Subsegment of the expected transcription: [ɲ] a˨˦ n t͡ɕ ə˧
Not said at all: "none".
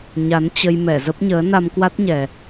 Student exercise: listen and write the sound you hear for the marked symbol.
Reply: ɲ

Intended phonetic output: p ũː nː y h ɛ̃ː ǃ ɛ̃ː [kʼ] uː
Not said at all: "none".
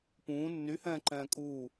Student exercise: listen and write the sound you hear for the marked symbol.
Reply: kʼ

